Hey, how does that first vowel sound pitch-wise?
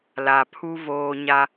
low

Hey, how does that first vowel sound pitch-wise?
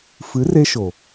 rising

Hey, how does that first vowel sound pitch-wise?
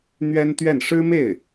high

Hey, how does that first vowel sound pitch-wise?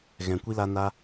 low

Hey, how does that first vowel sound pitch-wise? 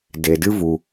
low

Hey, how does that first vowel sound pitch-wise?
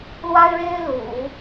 high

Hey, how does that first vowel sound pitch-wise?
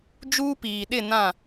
high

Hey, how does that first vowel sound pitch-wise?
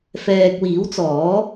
low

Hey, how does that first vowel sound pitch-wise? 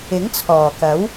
rising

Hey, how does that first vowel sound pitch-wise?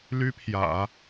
high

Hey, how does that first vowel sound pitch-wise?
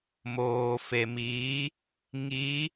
low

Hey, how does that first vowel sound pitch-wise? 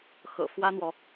low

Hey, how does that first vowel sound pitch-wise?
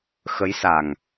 rising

